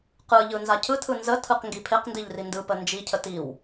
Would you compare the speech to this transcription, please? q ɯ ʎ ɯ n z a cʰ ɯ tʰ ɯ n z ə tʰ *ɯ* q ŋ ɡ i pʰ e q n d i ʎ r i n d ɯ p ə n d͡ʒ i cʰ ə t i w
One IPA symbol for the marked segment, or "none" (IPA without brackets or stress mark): ɯ